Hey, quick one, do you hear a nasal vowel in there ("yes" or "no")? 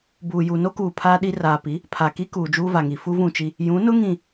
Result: yes